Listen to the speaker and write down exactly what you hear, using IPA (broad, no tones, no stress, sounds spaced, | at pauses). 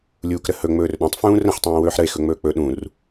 lʲ uː k ɾ ə h ɵ ŋ͡m ɵː r ɗ œ̃ tˤ f ũː r ə̃ ħ tˤ ũː w ɵː ħ ɾ ə e̯ x ɵ ŋ͡m ɵː k͡p ɵ ɗ ũ r